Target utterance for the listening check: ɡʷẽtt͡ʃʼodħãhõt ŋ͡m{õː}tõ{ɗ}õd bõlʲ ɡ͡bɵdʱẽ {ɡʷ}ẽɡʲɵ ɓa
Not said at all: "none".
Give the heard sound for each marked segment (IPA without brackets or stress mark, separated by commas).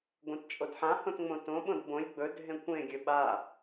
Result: õ, ɓ, kʷ